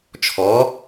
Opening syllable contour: rising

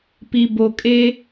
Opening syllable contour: low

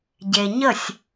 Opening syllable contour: low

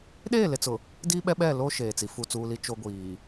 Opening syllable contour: falling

